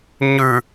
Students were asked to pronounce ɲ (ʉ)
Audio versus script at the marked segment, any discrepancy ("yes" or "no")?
no